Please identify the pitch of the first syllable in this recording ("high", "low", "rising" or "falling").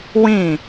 falling